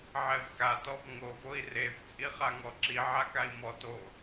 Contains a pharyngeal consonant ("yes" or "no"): yes